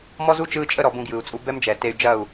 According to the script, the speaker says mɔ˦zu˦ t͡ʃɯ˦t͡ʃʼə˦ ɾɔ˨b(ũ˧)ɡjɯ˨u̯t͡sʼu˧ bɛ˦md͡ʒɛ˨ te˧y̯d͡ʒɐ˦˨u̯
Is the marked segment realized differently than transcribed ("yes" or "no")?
no